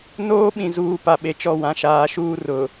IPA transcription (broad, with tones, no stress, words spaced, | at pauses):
noː˦ɓĩ˨ zuː˨ pa˨ɓe˨t͡ʃɔ˦˨ wã˨ʃaː˨ʃuː˦ rʊ˨